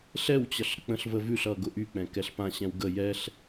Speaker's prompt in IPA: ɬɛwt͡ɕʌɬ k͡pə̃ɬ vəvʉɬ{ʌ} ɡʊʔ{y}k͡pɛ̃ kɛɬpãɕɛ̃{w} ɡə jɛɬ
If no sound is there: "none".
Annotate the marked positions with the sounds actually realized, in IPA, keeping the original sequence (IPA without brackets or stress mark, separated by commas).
ʌ, y, w